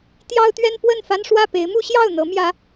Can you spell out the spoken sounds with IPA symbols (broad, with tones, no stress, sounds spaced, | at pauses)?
t̪ j ɑ˦ ʊ̯ t̪ ɥ ɛ˦ n p w ə˥˨ n f a˦ n ʂ w ä˥˨ p e˨˦ ɪ̯ m u˦ ɕ j ɑ˥˨ ʊ̯ n̪ ɤ˨˦ m j ä˨˦